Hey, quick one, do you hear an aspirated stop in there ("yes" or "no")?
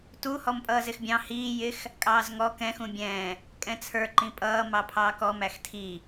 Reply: yes